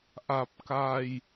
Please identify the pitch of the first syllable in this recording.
low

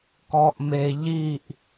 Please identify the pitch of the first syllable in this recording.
low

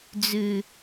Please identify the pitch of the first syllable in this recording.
low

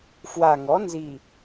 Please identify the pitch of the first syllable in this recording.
low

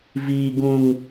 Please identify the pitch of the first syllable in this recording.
low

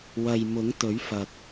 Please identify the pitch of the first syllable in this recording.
low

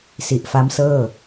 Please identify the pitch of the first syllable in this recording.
low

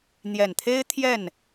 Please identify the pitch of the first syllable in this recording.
low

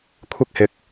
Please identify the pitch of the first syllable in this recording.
high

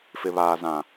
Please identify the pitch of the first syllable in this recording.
low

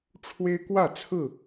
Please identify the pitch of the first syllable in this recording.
high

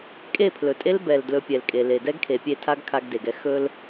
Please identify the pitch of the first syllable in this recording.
falling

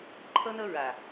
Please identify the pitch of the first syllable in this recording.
high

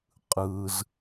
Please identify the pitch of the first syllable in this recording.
low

